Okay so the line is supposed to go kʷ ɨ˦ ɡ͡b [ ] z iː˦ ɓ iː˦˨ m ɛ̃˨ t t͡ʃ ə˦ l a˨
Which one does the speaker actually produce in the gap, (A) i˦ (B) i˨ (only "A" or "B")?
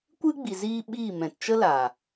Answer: B